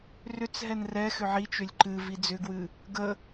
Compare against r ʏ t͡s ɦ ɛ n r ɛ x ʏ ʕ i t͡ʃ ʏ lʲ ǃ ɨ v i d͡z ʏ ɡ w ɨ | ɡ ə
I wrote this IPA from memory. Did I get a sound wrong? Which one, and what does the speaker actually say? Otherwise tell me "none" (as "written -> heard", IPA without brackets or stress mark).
none